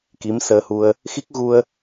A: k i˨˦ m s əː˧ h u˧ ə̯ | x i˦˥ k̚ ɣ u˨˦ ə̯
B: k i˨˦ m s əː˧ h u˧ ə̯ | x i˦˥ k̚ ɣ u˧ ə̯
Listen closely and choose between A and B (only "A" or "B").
B